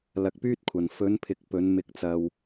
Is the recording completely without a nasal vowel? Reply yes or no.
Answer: yes